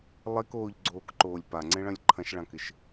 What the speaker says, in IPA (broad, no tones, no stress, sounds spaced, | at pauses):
lˠ e k oː ʎ ɡ͡ǀ oː k ǃ oː lʲ p a ŋ͡ǀ ẽ ɭ ɐ̃ lʲ ǃʰ ɐ̃ ʃ ɭ ã k ɪ ʃ